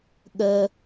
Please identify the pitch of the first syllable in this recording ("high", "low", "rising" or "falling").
high